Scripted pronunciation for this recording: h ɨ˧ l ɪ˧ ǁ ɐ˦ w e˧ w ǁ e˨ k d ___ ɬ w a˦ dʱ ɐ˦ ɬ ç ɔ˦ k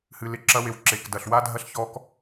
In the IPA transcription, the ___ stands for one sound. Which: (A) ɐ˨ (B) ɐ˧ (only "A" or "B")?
A